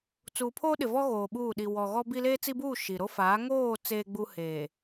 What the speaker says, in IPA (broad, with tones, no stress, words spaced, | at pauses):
t͡suː˨ pʰoː˦ɗɪ˨vɔ˦ ɣoː˨ɓuː˦˨ ɗi˨ wɔ˨ɣɔ˦bi˦ leː˦t͡si˦buː˦˨ ʃi˨ ɾo˦faː˨˦ ŋoː˦˨ t͡seː˨ɡ͡bu˨ heː˨